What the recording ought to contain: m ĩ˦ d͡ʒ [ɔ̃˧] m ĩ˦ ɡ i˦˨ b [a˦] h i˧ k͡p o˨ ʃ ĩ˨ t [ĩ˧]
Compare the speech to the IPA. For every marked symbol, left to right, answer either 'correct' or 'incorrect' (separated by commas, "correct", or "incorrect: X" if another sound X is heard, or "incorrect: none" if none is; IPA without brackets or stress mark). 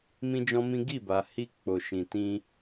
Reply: incorrect: ɔ̃˦, incorrect: a˨, correct